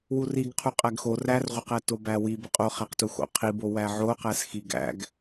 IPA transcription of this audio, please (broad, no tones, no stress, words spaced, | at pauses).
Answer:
wuriɡ qʰuqʼæɡxo rærʁʷəqæ tobæwi bəqʼoχæqtu xo̰qʰibo wæʕoqæs xiɡæ̰ɡ